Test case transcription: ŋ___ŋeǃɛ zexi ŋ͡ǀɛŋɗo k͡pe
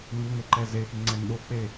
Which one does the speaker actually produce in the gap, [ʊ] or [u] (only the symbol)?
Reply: u